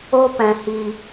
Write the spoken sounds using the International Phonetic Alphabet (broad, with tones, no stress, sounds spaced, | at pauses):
o˦ p ɛ̃˨ h i˨